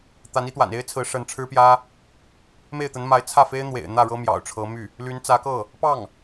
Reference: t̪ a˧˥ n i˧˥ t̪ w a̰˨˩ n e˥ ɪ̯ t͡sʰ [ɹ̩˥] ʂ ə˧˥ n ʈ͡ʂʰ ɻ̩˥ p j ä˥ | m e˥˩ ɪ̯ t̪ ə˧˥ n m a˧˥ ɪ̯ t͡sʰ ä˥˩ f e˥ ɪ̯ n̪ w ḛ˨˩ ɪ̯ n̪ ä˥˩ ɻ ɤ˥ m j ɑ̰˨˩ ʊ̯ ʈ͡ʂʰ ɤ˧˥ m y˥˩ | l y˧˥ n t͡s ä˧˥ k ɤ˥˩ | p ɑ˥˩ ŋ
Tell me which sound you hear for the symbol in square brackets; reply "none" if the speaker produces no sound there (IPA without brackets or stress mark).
ɹ̩˧˥